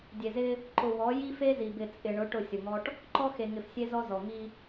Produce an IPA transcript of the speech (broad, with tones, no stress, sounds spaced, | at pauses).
dʲ e˨ z ɪ˦ | ǃ ʊ˨ w ɔ˨˦ j i˦ f e˦ z i˨ b ɪ˨ t͡sʼ ɪ˨ ɳ ʊ˨˦ ʈ ʊ˦˨ sʲ ʊ˨ ŋ ɔ˦ ʈ | ǃ ɔ˦ x e˨ ŋ ɪ˨ f sʲ e˦ z ɔ˦ z ɔ˨ ŋ i˦